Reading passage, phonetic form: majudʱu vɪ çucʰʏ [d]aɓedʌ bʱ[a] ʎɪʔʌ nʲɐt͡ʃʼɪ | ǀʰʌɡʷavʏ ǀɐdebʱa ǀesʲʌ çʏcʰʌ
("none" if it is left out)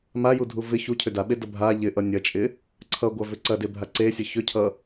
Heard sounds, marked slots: d, a

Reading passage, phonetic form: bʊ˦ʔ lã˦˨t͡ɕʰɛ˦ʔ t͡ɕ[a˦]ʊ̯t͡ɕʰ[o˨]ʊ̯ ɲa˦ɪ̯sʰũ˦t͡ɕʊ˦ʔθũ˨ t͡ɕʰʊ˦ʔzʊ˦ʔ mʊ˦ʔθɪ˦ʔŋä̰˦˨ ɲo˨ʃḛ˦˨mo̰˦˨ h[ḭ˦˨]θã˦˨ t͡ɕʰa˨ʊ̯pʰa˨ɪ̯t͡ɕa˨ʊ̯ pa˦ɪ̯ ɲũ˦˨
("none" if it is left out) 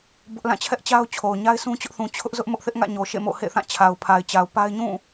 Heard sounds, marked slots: a˦, o˨, ḛ˦˨

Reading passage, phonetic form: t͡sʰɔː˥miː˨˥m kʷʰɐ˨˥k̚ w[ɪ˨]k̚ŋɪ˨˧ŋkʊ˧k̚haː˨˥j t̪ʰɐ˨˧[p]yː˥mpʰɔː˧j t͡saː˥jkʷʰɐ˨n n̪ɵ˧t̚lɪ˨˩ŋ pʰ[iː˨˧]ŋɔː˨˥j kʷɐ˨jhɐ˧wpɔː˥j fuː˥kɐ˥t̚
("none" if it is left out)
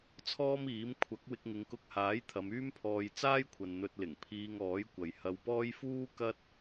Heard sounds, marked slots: ɪ˧, m, iː˧

